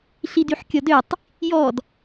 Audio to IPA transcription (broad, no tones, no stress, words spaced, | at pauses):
ɬidyħkʲɔdøtˤ | jɔd